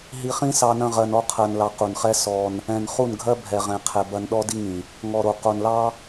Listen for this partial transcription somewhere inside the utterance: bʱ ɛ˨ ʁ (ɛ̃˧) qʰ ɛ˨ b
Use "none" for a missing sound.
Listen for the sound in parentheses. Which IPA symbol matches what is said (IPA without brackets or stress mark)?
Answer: ɛ̃˨